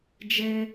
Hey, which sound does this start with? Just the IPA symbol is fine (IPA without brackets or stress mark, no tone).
d͡ʒ